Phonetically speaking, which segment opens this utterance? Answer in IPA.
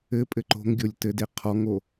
ɘ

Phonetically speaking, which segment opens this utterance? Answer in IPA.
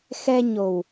x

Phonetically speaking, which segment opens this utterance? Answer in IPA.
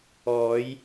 ɔː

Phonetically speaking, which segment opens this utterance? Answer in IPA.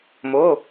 m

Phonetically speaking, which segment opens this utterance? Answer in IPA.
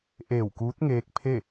ʔ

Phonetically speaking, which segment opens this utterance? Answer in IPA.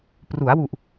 p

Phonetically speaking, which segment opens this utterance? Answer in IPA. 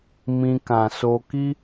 m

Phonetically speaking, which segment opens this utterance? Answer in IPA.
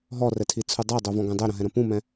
ɦ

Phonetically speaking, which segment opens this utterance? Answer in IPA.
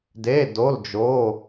d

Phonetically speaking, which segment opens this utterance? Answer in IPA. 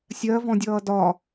sʲ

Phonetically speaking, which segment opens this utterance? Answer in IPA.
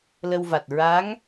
l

